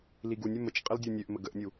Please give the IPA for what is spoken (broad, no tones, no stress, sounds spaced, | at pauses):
l i ɡ u nʲ ɵ m ə t͡ʃ qʼ ə l dʲ u nʲ ø ʔ m ə ɡ ə ʔ nʲ u